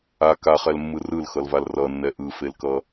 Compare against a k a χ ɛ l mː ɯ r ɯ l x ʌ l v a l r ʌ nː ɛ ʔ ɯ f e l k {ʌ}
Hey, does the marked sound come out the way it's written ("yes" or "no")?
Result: yes